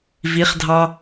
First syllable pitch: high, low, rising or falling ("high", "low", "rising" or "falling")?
rising